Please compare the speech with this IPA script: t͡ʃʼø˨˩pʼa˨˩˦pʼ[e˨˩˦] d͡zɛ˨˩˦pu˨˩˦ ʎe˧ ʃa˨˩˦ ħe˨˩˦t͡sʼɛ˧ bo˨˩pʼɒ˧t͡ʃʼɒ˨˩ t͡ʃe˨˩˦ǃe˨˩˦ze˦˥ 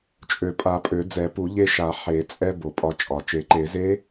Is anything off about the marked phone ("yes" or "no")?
yes